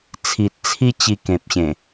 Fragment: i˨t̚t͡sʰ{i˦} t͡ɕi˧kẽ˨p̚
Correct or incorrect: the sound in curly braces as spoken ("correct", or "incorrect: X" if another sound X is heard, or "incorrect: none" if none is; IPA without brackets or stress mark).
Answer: correct